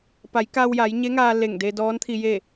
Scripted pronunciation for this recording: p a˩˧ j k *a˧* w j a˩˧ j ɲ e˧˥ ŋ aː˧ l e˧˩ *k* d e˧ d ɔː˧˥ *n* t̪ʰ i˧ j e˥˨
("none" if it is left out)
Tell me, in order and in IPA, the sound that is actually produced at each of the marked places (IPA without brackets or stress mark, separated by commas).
a˧, ŋ, n